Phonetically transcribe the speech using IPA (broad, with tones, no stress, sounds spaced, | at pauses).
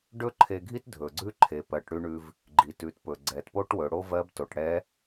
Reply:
ɖ ɵ˥ ǃʰ e˧ ɡʱ i˥ t dʱ ɵ˩ ɡ͡ǀ ʉ˥ ǃʰ e˩˧ p ɜ˩˧ ʈ ɽ ʉ˧ ɳ ʉ˧ v | ɡ͡ǃ i˩ t ʉ˩˧ t p ɵ˩ ɡ͡ǀ ɛ˩˧ t p o˥ ʈ w ɵ˩˧ ɽ o˥ v ɜ˧˥ b t o˩˧ ʈ ɽ ɛ˧˥